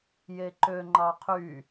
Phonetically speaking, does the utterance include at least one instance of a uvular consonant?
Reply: yes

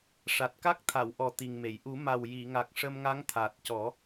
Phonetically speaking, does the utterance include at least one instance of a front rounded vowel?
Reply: no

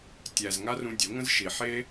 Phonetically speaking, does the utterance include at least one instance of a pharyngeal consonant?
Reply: yes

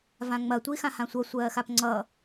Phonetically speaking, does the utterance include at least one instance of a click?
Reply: yes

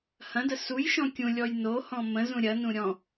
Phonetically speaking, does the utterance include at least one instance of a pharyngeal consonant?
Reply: no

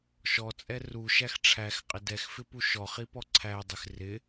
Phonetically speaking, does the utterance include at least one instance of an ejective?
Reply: yes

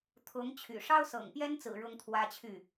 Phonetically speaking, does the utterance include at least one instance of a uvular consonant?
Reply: no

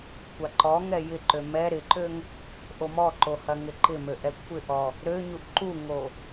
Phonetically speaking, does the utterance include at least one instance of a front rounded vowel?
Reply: yes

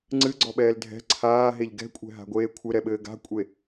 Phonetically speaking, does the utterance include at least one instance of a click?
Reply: yes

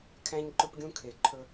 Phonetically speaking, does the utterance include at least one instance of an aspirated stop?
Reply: yes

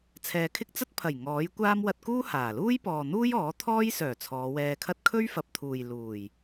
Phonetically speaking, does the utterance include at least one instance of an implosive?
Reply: no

